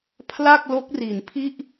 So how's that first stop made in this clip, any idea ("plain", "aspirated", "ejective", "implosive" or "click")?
aspirated